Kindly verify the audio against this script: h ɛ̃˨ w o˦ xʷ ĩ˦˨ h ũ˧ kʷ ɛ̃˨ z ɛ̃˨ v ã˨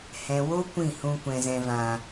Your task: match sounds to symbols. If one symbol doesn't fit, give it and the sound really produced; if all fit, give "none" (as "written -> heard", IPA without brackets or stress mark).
xʷ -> kʷ